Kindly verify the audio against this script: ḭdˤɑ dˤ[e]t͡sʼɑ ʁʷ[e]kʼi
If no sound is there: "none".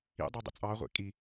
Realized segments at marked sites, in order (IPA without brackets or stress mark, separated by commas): ḛ, ḛ